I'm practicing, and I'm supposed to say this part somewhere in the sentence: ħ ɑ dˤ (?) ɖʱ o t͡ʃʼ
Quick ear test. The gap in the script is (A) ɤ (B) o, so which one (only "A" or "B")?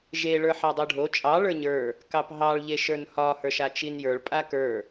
B